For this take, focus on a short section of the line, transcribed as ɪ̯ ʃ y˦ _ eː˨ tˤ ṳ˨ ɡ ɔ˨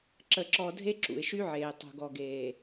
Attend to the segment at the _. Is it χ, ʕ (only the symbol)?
ʕ